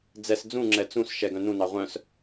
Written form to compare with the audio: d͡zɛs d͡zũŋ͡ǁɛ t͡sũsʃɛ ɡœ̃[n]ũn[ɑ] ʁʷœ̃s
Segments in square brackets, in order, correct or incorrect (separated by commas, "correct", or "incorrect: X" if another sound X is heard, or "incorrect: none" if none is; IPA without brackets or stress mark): correct, correct